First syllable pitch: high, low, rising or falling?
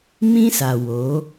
high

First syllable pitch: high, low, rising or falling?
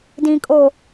low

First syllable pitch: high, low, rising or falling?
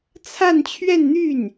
falling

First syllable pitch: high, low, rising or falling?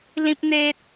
high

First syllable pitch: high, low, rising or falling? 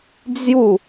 falling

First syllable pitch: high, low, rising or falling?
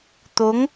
rising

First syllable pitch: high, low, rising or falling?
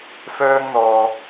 high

